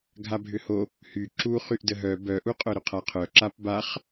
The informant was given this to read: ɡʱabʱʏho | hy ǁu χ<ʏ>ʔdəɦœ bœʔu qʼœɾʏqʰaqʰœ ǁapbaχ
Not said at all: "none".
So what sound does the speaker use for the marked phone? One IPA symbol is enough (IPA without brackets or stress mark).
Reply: y